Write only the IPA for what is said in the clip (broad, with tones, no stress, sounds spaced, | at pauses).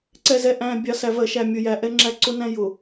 ǀ ɛ˨ z ɛ˨ ʔ æ̃˨ bʲ ɑ˨ s æ˨ v ɜ˨ ʃ æ˨ mʲ ʊ˨ j æ˨ ʔ ɛ˦ ŋ͡ǁ æ˦ ǀ ʊ˦ n æ̃˦ j ʊ˨